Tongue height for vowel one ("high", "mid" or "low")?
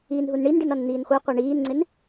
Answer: high